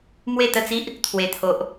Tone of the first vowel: falling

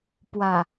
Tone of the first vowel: low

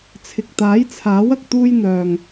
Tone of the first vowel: low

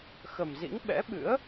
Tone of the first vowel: low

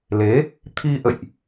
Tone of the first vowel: rising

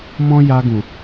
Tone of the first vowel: high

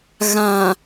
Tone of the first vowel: low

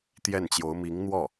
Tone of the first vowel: falling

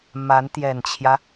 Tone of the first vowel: rising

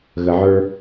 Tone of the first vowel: low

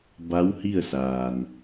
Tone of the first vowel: rising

